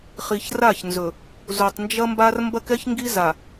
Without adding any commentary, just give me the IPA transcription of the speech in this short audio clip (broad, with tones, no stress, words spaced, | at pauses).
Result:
χi˨çra˦˨çnzɵ˨ | zu˨tˤnd͡ʒɐ˦mba˦r mbɐ˦kɛ˦çŋɡi˦za˨